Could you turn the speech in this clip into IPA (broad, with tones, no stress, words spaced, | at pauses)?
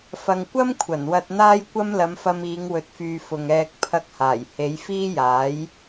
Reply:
fɐ˨ŋkʷɐ˥m kʷʰɐ˨˩nwɐ˧t̚n̪aː˥j kʷɐ˥mlɐ˨˧mfɐ˧m iː˨˧ŋwɵ˨t̚fyː˨ fʊ˨ŋɛː˧k̚ pʰɐ˧k̚haː˨˩jhe˨˧j fiː˥jaː˨˥j